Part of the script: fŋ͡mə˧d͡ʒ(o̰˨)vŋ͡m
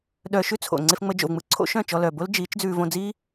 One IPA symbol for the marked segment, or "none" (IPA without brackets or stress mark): o̰˨